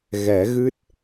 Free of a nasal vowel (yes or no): yes